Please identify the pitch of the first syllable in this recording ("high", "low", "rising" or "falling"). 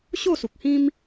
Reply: falling